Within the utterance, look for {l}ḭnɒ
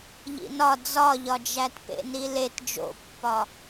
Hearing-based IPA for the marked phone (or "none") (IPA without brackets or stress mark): ʎ